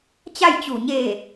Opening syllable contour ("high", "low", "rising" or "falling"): falling